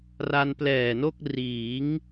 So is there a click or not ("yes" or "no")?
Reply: no